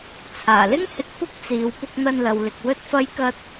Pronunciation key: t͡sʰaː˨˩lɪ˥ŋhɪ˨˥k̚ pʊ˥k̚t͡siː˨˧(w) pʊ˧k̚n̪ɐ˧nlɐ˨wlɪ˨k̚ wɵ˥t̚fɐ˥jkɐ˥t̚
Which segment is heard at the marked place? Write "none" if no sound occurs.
w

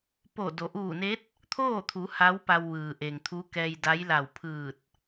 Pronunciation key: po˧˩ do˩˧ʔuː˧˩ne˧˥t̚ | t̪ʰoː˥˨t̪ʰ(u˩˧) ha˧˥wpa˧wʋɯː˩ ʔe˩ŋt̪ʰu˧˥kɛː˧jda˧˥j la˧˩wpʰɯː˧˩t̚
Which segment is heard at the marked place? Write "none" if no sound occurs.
u˩˧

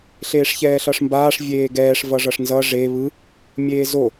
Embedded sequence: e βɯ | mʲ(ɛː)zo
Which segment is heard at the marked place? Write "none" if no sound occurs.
eː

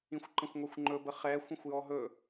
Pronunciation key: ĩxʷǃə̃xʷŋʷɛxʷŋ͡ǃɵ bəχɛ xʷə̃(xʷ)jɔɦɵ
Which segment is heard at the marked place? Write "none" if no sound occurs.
xʷ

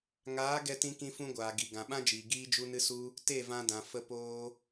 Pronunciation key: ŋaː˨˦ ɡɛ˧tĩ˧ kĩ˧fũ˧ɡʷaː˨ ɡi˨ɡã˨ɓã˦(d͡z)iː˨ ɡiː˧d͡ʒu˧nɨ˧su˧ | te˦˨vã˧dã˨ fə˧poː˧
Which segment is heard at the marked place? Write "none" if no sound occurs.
d͡ʒ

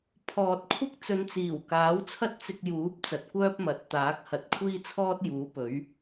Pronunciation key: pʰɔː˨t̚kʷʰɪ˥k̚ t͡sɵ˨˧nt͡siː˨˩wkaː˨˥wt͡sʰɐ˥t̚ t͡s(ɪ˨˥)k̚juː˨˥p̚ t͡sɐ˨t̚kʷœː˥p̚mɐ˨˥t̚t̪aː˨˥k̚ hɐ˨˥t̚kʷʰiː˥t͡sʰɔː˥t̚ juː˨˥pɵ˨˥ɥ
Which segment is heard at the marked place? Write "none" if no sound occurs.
ɪ˧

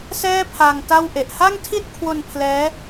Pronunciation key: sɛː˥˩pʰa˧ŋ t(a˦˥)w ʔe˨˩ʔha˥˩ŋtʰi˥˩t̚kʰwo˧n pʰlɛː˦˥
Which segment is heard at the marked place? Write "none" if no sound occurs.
a˥˩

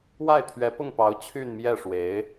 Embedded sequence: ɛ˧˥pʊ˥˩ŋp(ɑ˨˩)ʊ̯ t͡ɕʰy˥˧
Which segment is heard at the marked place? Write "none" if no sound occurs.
ɑ˧˥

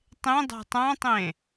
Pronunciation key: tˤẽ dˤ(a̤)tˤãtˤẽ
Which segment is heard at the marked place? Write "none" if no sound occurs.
a̤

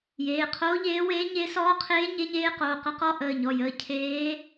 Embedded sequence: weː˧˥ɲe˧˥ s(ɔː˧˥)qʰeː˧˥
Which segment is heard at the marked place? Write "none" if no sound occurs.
ɔː˧˥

